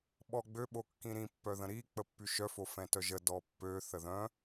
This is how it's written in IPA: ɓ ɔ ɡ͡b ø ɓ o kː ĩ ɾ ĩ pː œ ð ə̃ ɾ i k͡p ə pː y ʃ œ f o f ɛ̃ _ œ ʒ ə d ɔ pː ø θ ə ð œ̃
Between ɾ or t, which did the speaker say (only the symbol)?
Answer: t